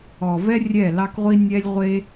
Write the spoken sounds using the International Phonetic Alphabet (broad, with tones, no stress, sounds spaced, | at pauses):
ɔ˨ v ɛ˦ rʲ ɛ˦˨ l ɑ˦ k ʁʷ i˦ nʲ ɛ˦ lʲ ʁʷ e˦